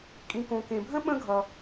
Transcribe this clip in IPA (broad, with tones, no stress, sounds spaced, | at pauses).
kʼ ĩ˩ k õ˩ k ẽ˩ bʱ ə̃˥ ɓ ə̃˥ ɡʱ ʌ˩